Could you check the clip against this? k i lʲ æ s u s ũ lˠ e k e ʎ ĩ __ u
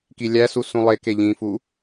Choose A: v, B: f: B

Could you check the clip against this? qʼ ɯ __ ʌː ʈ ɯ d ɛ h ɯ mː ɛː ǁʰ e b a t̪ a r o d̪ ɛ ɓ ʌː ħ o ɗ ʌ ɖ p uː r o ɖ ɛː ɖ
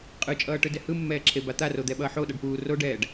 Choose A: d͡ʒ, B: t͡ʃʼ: B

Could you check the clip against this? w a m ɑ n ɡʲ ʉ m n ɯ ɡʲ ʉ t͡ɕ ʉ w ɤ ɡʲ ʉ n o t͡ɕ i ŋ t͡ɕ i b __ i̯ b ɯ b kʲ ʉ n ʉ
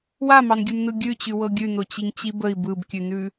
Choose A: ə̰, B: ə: B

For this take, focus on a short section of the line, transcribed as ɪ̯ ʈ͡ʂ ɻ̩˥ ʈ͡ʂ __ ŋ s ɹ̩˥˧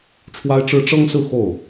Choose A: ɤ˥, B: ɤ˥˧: A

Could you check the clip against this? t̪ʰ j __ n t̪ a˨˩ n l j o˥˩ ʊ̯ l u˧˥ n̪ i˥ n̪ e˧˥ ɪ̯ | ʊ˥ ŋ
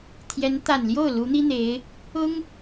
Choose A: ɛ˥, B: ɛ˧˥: B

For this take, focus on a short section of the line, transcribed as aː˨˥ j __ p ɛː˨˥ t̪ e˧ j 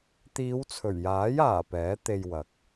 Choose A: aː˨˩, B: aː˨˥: A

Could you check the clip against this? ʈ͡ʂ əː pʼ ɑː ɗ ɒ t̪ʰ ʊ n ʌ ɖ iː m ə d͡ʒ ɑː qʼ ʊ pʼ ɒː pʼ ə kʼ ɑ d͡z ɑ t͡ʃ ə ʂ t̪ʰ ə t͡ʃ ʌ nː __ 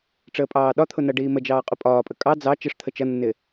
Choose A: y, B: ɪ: B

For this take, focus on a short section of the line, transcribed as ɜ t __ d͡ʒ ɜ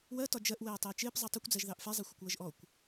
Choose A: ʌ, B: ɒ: B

